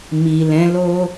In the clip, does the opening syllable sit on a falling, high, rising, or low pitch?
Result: low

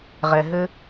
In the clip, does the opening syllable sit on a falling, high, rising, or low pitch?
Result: low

